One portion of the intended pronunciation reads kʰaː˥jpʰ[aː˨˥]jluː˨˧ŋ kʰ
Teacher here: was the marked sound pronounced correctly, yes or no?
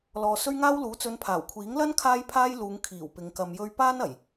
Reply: no